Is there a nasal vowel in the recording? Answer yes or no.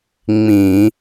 yes